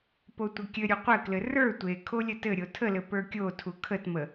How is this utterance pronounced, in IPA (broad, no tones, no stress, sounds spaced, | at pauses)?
p o tʷ ɘ kʲ ɘ ɾʲ u qʷ ɘ k l ɘ r ə˞ tʷ e kʰ o lʲ ə t ɘ ɾʲ o tʰ ə l ɘ p ə˞ kʲ o tʰ u kʰ ə t m ə